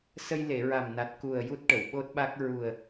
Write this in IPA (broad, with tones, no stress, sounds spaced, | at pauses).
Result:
s ə˧ j l e˨˩˨ ɹ a˨˩ m n a˨˩ t̚ k u˨˩ ə̯ j u˦˥ t̚ ʈ ə˨˩˨ w ɓ o˦˥ t̚ ɓ a˦˥ k̚ ɹ u˨˩ ə̯